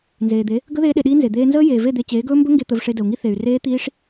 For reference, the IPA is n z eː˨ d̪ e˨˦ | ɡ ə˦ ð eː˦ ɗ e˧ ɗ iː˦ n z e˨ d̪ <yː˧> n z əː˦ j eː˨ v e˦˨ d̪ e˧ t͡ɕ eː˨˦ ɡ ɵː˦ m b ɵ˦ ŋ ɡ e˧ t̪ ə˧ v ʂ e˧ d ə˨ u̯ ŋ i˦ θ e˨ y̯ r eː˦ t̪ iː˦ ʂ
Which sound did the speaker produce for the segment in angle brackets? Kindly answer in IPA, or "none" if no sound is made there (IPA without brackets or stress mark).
eː˧